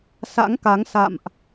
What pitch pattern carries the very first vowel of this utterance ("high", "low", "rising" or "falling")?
rising